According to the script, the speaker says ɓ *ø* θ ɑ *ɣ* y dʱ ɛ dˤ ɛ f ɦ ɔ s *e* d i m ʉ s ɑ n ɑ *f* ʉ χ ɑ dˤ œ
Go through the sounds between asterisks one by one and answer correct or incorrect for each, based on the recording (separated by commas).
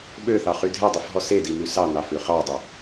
correct, incorrect, correct, correct